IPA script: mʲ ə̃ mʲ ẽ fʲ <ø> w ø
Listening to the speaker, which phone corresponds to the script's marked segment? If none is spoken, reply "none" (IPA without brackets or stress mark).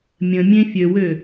ø